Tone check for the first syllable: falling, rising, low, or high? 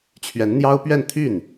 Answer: rising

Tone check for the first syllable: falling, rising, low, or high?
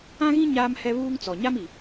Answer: high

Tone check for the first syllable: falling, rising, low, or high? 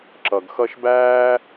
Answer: low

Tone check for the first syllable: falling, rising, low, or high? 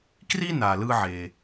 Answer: high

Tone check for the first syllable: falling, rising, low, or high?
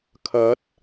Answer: rising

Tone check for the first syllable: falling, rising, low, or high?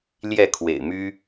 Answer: falling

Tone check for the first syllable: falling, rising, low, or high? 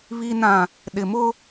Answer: low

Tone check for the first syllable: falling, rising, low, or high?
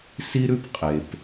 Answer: high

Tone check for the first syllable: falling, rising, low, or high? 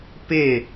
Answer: falling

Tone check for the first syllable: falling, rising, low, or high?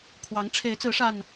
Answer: rising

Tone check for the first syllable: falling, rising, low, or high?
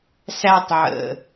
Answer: high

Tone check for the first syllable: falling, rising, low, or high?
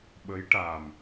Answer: rising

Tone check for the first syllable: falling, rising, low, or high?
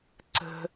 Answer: low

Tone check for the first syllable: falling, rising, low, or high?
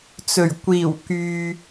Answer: low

